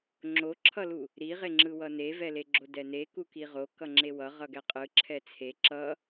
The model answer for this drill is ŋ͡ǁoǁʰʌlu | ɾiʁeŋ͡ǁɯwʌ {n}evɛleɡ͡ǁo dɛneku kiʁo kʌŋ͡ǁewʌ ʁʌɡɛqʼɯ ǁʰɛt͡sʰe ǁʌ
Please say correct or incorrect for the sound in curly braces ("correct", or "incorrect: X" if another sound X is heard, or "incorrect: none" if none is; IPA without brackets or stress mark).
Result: correct